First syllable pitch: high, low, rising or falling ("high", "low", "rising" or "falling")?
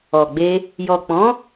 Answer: low